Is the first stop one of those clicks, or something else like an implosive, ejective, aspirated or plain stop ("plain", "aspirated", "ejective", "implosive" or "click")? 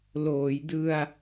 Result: plain